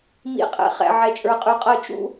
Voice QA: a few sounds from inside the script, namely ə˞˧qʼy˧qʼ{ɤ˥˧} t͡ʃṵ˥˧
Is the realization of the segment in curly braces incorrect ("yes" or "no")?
no